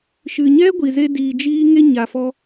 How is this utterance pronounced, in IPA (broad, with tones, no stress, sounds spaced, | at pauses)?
ʃ ɨ˨ ɲ ɛ˦ ɡʷ i˨ z e˧ d iː˨ d͡ʒ iː˧ ŋ e˧ ɲ a˨ f ɔ˧